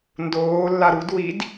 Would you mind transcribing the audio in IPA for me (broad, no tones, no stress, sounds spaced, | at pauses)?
n d oː lː a ɾ u d w i d